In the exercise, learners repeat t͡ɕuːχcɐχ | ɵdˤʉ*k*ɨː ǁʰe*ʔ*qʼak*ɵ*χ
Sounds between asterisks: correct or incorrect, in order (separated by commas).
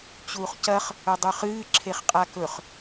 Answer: incorrect, incorrect, correct